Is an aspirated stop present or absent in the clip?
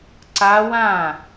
absent